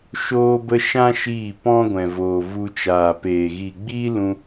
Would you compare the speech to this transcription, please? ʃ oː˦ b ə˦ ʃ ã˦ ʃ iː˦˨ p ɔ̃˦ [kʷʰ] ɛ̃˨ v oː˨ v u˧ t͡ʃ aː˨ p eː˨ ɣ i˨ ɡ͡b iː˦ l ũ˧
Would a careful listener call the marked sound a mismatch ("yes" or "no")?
yes